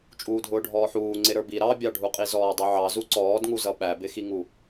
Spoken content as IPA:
t͡ʃʼ uː dʱ ʊː ɖʱ ɔː ħ uː ŋ͡ǀ ɪ ɾ ə˞ b i ɾ ɑ bʲ ɑ ɖʱ u qʼ i z ɔː dˤ u ʕ ɑ z u ǀ ɔː d ŋ u z ʌ ɓ æ b ɪ x i ŋ u

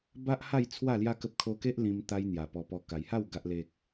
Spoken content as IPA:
b a˦ ʔ h a˥˧ j t͡sʰ w a˥˧ l j a˦ k ə˦ p̚ kʰ o˦ k e˦ ʔ l ĩ˧ m t̪ a˧ j n̪ j a˨˩ p ɔ˧ p ɔ˧ k a˨˩ j h a˥˧ w ɡ a˦ ʔ l e˦ k̚

